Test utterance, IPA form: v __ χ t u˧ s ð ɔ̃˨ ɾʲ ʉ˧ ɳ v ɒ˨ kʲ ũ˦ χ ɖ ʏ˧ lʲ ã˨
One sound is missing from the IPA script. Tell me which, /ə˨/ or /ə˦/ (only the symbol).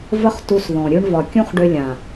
ə˦